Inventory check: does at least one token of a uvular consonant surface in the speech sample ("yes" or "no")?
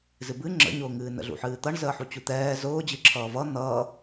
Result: no